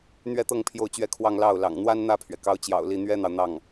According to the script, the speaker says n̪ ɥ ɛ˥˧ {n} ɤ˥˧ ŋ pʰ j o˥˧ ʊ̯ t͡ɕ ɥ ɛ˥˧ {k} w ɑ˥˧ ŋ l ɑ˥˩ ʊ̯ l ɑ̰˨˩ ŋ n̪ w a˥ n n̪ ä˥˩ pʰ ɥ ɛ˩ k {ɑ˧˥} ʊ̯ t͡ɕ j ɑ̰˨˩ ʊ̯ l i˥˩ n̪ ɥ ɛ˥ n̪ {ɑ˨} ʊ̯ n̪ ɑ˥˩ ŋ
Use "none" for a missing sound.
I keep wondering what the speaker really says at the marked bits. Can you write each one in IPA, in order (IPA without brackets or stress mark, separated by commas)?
t̪, kʰ, ɑ˧˥, ɑ˨